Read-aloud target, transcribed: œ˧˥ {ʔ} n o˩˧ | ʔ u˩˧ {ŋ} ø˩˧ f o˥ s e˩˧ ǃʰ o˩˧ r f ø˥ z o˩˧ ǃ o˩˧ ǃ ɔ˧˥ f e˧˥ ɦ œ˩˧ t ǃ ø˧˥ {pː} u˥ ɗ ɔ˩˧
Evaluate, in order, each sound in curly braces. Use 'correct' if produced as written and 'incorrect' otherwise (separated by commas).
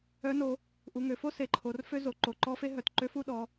incorrect, correct, incorrect